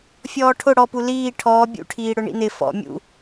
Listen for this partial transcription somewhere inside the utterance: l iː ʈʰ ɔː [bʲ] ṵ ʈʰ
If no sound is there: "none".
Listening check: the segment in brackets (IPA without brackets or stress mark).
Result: bʲ